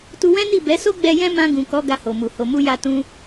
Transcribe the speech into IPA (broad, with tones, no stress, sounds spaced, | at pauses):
t u˧ w ɛ̃˦ n i˦˨ b ɛ˨˦ s o˦ ɡ͡b ɛ˧ j ɛ̃˦ m ã˧ ɡ ũ˨ k ɔ˨˦ ɡ a˧ h o˨ m u˨ h o˨ m u˧ j a˧ t ũ˧